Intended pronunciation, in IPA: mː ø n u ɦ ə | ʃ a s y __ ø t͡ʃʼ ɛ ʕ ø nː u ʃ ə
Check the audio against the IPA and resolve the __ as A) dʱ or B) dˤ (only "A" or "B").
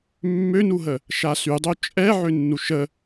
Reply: B